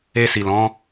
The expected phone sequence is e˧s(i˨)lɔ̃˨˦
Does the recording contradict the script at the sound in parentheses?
no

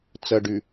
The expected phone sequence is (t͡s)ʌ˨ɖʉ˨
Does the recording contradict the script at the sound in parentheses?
no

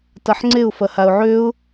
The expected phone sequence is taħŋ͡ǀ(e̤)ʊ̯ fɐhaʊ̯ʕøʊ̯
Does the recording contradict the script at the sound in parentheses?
yes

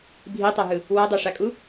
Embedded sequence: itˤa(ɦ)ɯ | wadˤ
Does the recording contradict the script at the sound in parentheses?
no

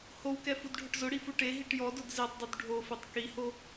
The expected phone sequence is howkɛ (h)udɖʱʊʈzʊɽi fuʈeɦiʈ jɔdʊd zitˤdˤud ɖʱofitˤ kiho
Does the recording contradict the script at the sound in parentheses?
yes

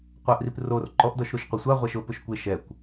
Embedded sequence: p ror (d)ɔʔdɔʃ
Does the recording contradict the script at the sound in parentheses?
yes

